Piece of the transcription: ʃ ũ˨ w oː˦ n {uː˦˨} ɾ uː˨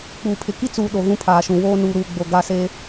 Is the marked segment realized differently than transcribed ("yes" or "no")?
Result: yes